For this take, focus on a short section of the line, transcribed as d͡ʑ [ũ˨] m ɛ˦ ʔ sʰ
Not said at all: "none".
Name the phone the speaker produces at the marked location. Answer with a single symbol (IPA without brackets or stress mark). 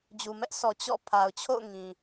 u˨